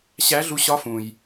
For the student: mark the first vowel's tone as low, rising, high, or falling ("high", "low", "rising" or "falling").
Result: rising